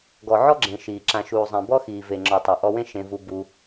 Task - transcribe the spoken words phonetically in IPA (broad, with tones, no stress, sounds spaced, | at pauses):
ɡ ɔ˨ ʕ ɔ˦ ɡ͡ǁ ẽ˨ ʃ iː˨ ǁ ã˨ ʃ uː˨ zˤ ẽ˨ b ɔ˦ x iː˨ v e˨ ŋ͡ǁ ɔ˨ tˤ e˨ ʔ ɔ˧ w ẽ˦ ʃ ẽ˧ v u˧ b u˧